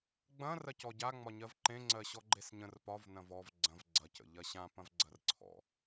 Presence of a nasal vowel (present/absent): present